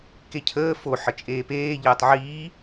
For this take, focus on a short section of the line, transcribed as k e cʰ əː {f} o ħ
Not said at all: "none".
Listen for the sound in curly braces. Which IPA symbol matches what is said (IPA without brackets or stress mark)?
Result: f